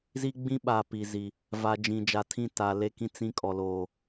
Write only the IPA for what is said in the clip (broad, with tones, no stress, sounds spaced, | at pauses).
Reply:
z i˦ ɡ͡b ĩ˦ ɓ a˨ p i˨ z i˨ | v a˨ d͡ʒ ĩ˨ d͡ʒ a˨ tʰ ĩ˦˨ t a˨ l e˦˨ k ĩ˦ t͡s ĩ˦ kʼ ɔ˨ l oː˨